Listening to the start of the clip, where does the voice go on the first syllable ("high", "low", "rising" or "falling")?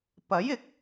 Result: rising